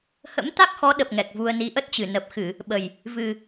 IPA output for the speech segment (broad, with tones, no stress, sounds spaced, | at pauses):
h ə̰˧˥ m t̪ a˦˥ k̚ x ɔ˨˦ ɗ ə˨˩ p̚ ŋ ɛ˨˩ k̚ v u˧ ə̯ n i˨˦ ʔ ə˦˥ t̚ t͡ɕ ɨ˨˩ n ə˨˩ p̚ x ɨ˧˩˨ | ɓ ə˨˩ j | v ɨ˨˩